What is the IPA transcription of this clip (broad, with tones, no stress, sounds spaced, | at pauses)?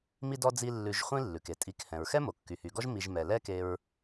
m i˦ d ɔ˦ d͡z i˦ lː ʉ˨ ʒ χʷ ĩ˥ lː ʉ˩ k e˩ tʼ i˨ k h ɛ̃˩ ɹ x ɛ˥ m o˩ kː y˩ h y˩ ɡ ɔ˥ ʒ m i˨ ʒ m ɛ˩ l ɛ˦ k e˨ ɹ